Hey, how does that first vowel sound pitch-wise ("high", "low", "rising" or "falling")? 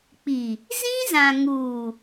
low